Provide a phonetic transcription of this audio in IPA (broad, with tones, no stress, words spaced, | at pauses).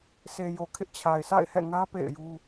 se˨jo˨kʰɪ˦ʔ t͡ɕʰa˨ɪ̯sa̰˦˨ɪ̯hɛ̰˦˨ŋä˦ pḛ˦˨ɪ̯ju˦